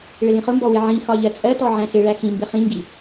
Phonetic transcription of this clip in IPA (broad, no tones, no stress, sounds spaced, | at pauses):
ɭ ɪ l ĩ χ ʊ m b ɔ w ɪ ʕ ĩ x ɒ ʎ ɜ t͡sʼ ɜ t ɔ ʕ æ̃ s ɪ ɭ æ x ĩ m b ɪ χ ĩ ŋ ɡ i